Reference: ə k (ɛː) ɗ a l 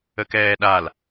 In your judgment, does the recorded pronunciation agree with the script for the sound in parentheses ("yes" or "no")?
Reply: yes